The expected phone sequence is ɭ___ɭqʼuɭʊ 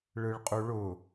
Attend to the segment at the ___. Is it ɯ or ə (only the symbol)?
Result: ɯ